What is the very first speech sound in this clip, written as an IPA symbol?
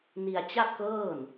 n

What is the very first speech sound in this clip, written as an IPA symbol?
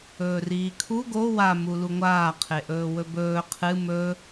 ɵː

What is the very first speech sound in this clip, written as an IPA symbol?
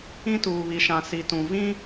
ĩ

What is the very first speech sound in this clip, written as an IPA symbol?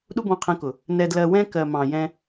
ɗ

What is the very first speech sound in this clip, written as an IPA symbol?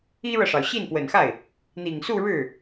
i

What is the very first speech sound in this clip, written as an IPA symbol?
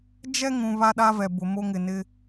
d͡ʒ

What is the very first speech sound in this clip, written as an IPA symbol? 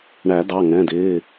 ɳ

